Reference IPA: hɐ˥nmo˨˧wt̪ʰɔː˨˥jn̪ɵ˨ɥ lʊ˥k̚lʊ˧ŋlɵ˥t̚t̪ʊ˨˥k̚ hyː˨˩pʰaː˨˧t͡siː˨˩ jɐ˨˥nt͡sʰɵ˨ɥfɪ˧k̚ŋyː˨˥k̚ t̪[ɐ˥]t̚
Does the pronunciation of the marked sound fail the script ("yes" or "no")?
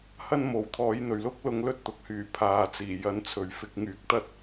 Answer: no